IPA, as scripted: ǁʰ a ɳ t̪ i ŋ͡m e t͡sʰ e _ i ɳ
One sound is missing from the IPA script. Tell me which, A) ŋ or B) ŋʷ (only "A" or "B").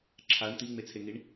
A